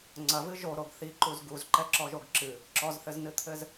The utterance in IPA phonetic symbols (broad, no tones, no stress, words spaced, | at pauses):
ŋ͡ǀɐvɨ ʒoɾoɡ θiǃuz ɡuzǃɛǁɔʒoɡ ǁɨ | ǁɔzθɘznɨt̪ʰɘz